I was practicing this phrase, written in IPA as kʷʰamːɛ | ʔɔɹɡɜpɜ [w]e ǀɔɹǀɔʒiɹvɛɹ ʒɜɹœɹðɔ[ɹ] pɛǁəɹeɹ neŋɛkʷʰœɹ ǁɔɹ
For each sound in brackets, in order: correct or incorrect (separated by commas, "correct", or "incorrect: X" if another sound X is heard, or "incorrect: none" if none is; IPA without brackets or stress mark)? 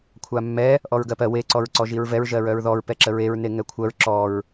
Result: correct, correct